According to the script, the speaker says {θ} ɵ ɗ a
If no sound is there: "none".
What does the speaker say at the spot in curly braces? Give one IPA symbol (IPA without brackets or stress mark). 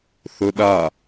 θ